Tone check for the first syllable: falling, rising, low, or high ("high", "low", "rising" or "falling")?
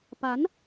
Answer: rising